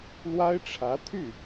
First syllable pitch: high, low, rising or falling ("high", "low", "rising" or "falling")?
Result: high